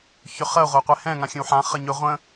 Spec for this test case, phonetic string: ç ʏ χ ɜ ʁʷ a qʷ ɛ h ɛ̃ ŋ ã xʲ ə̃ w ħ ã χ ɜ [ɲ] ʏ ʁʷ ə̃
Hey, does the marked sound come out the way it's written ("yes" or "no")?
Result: yes